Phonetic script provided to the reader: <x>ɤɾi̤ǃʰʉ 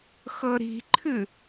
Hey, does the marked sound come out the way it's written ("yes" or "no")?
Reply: yes